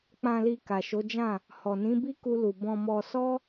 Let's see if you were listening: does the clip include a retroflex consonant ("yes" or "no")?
no